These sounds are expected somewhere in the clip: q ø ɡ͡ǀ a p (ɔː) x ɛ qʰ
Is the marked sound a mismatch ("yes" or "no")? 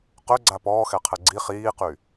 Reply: no